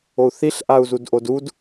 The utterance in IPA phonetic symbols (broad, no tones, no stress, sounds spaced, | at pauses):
o u̯ θ i ɬ ʔ a u̯ z u d ʔ o d u d